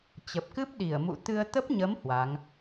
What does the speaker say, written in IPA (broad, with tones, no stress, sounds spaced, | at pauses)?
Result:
t͡ɕ ə˨˩ p̚ k ɨ˦˥ p̚ ɗ i˧˩ ə̯ m ṵ˧˨ t̪ ɨ˧ ə̯ t̪ ə˦˥ p̚ ɲ ə˨˦ m h w a˨˦ ŋ